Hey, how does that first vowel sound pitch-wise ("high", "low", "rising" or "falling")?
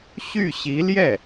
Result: falling